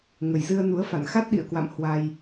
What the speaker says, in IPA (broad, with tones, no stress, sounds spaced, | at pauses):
ŋ ə˨˩ j z ɨ˧ ə̯ n u˨˦ ə̯ f a̰˧˨ n x a˦˥ t̚ ɗ ḭ˧˨ ə̯ k w a̰˧˨ m h w a˧ j